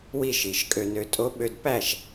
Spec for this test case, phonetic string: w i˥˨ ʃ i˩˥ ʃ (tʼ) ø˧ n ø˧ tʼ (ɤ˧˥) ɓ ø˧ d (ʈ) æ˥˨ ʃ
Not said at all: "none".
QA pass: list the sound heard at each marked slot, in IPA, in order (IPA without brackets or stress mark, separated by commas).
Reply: kʼ, o˧˥, p